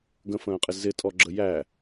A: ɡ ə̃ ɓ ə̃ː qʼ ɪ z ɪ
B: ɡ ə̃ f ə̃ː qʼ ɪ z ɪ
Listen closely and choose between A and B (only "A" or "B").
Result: B